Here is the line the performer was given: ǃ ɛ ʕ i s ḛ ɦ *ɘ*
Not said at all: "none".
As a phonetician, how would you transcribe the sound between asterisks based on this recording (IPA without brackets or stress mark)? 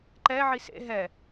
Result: ɛ